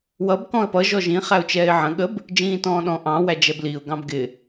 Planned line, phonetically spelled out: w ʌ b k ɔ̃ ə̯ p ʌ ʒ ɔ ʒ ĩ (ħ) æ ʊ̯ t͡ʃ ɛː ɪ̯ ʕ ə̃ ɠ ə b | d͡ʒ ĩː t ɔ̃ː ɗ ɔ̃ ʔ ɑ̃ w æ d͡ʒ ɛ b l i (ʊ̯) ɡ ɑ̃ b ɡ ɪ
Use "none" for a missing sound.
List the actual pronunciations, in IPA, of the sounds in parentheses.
χ, ʊ̯

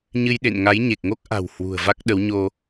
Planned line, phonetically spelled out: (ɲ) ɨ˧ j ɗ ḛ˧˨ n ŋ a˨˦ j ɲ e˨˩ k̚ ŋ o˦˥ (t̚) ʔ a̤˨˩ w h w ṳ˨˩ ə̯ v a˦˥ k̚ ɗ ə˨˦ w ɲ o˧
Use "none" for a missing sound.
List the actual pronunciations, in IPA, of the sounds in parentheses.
ɲ, k̚

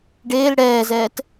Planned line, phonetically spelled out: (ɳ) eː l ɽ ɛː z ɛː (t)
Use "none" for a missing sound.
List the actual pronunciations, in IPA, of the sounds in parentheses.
ɖ, t

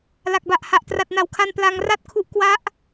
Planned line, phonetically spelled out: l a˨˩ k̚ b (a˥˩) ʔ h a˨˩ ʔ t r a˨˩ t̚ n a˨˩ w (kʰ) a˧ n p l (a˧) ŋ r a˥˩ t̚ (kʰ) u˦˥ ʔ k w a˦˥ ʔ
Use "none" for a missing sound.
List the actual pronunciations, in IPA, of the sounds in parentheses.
a˨˩, kʰ, a˧, kʰ

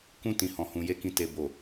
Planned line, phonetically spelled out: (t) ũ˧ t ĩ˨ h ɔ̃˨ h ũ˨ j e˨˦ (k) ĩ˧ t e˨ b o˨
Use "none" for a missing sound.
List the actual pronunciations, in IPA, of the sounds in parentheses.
k, k

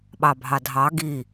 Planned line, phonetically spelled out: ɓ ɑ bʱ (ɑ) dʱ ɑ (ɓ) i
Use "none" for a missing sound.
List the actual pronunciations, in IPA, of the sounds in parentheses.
ɑ, ɡ

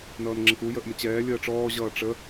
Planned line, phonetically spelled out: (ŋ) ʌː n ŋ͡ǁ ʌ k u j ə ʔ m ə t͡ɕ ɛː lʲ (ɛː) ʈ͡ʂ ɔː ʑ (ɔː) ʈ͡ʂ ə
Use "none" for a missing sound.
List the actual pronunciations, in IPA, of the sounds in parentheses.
n, əː, ʌː

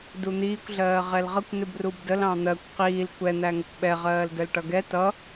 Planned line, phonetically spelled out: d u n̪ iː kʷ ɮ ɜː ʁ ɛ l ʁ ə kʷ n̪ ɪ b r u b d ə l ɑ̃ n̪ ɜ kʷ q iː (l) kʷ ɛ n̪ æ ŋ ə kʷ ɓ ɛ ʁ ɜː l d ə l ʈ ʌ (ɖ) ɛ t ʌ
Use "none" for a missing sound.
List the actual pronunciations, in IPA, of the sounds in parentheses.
l, ɡ

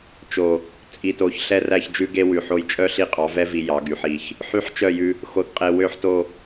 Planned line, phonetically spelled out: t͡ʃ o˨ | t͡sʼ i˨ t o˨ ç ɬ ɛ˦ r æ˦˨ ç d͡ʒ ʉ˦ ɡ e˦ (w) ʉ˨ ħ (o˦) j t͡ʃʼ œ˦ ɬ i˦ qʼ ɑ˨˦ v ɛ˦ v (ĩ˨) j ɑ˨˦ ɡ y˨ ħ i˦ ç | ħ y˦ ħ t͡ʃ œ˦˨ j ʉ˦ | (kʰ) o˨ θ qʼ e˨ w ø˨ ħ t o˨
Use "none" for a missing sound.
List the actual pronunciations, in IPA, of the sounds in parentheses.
w, o˦, i˨, x

